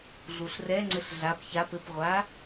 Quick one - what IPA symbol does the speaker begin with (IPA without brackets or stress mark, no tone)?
ɮ